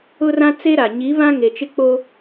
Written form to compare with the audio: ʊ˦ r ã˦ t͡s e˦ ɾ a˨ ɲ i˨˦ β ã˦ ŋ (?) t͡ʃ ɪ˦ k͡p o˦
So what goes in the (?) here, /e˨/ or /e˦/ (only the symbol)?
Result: e˨